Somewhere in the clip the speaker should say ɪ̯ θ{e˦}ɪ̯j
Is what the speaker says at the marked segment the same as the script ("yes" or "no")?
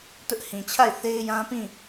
yes